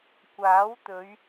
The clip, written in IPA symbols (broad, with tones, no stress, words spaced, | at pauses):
kʷaː˨˥wt̪ɵ˨˧ɥ